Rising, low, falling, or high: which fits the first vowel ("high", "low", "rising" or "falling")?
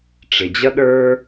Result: low